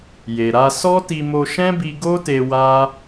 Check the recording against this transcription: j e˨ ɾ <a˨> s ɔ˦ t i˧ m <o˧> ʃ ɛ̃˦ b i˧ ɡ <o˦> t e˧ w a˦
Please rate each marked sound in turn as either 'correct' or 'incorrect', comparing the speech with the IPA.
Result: incorrect: a˧, correct, correct

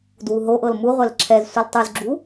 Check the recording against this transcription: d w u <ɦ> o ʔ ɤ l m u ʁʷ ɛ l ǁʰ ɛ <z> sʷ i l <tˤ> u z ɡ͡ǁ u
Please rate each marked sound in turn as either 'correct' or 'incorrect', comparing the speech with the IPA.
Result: correct, correct, correct

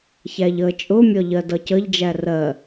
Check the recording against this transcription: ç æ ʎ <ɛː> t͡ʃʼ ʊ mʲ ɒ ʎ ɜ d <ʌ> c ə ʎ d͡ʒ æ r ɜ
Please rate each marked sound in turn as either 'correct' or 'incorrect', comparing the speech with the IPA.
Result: incorrect: əː, correct

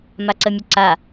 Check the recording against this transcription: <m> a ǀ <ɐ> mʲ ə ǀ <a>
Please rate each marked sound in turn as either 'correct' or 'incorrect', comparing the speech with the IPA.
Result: correct, incorrect: ə, correct

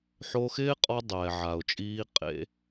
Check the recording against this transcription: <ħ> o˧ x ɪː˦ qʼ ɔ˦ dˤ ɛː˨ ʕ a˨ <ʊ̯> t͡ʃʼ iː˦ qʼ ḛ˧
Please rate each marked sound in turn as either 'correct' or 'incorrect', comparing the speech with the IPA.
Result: correct, correct

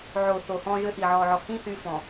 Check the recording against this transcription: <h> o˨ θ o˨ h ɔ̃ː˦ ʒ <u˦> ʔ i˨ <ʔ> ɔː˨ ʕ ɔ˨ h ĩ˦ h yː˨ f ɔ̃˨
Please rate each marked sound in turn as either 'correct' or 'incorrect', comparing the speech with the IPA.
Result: incorrect: ʕ, incorrect: ø˦, incorrect: ʕ

